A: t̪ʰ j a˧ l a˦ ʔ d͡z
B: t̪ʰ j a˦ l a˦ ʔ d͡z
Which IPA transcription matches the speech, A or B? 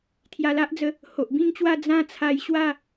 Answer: A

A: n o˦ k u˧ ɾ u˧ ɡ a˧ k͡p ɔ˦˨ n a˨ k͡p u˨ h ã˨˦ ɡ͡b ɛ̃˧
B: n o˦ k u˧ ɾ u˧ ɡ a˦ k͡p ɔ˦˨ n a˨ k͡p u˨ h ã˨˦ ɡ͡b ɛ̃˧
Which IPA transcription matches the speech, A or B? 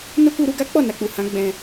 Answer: B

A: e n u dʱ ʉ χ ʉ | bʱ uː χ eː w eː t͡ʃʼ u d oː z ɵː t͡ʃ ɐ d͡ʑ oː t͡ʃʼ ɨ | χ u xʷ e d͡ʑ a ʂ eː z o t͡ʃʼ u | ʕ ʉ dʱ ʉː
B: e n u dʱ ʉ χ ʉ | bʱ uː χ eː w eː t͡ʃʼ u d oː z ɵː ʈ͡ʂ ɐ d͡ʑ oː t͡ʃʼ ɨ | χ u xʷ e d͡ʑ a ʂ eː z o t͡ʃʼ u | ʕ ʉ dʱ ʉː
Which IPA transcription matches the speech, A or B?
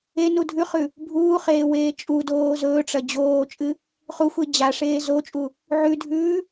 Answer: B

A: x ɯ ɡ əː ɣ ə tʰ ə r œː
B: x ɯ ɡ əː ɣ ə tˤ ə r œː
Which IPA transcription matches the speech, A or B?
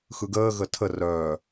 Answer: A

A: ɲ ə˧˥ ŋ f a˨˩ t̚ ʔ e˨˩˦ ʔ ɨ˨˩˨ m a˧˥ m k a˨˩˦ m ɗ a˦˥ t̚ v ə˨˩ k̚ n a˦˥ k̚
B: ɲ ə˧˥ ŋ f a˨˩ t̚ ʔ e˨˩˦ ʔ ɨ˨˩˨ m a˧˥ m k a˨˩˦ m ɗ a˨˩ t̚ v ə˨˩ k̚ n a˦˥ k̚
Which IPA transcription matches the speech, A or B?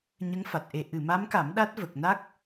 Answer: A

